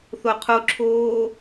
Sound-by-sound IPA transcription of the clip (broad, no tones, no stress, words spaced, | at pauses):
θoqʰoǁʰoː